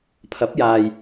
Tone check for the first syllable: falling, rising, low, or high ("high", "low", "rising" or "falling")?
rising